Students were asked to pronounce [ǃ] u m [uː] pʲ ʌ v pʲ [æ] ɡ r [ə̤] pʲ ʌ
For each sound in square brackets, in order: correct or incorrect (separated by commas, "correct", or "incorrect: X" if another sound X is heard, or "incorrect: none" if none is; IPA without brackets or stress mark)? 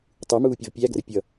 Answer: incorrect: tˤ, correct, correct, incorrect: ə